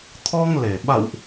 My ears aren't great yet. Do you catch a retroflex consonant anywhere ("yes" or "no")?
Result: no